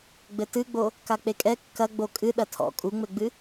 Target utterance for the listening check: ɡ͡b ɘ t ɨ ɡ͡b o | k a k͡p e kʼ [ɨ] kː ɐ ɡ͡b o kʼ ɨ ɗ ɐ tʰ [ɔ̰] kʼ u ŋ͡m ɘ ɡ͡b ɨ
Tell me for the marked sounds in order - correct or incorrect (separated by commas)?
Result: incorrect, correct